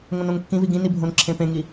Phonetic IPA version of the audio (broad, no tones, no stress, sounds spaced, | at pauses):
ŋ õ n õ ŋ kː ĩ v i ɡ ĩ n i bʱ õ n ǁʰ ẽ p ẽ ŋ i